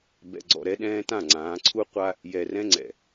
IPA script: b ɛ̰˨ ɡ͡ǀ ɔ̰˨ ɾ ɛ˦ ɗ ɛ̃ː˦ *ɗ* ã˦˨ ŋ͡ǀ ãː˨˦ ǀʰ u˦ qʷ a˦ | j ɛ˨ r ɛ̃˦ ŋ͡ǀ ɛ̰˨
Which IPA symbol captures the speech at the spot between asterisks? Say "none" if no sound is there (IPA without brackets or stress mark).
t